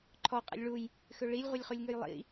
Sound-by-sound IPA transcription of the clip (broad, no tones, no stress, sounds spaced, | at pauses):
ǃʰ ɔ qʼ a̰ lʲ ɭ u j | x ø ɭ i lʲ ʁʷ e lʲ χ u lʲ ŋ ø j lˠ ḭ